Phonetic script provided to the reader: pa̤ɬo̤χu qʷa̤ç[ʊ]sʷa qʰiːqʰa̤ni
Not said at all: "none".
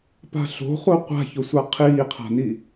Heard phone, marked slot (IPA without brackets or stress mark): ʊ